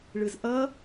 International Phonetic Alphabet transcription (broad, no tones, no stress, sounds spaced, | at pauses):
ɭ ɯ z ʔ ʌ